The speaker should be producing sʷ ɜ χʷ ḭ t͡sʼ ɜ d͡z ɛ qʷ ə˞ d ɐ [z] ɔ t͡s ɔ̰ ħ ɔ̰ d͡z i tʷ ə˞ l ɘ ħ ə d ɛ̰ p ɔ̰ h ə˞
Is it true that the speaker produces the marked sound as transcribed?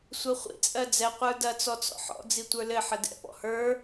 no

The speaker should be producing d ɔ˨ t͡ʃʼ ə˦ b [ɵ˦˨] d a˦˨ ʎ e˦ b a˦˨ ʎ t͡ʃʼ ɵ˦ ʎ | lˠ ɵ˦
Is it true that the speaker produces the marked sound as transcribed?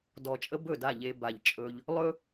yes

